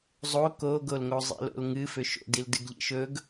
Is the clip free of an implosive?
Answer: yes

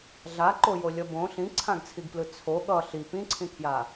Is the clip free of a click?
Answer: no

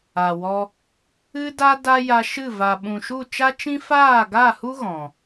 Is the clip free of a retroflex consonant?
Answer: yes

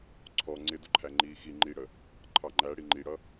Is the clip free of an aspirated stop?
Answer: no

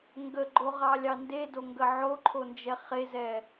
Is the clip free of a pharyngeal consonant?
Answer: no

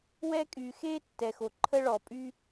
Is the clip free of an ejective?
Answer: no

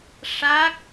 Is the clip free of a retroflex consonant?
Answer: no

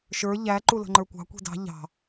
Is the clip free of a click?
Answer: no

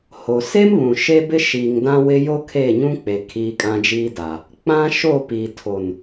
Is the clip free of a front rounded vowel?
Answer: yes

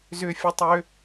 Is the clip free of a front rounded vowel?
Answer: no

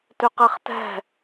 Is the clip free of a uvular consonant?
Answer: no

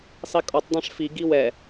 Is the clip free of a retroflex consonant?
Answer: no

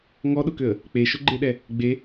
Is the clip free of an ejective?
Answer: yes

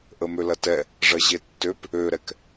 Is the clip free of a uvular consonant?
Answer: yes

